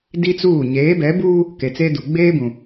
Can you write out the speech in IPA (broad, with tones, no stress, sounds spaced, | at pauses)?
d i˦ t͡s uː˦˨ ɲ eː˨˦ b ɛ˨˦ b uː˦ | k e˨ t͡s eː˦ d u˨ ɡ͡b eː˦ b ũ˨